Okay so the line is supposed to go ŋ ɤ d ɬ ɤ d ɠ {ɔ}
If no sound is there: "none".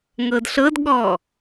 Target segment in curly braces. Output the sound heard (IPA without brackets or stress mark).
ɔ